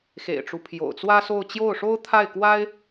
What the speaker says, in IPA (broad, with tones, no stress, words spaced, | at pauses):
xḛ˨˩ɪ̯ʈ͡ʂu˦pʰjo̰˨˩ʊ̯ t͡swä˥so˥˧ʊ̯ t͡ɕjo˥˩ʊ̯ʂo˥ʊ̯ t̪ʰa˥˩ɪ̯kwa˥ɪ̯